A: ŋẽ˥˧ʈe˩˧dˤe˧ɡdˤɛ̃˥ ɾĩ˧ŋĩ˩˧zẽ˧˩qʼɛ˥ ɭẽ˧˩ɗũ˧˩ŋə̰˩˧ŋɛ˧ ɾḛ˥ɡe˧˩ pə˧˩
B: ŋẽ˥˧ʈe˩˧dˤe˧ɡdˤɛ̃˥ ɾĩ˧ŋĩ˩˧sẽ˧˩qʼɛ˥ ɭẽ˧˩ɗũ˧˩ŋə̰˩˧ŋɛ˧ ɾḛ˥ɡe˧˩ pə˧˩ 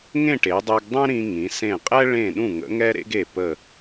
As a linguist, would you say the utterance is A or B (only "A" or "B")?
B